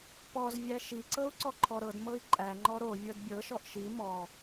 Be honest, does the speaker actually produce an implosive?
no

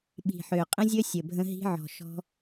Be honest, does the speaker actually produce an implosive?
yes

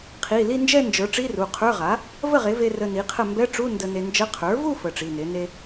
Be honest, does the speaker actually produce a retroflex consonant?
yes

